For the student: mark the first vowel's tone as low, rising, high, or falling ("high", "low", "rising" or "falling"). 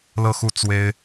falling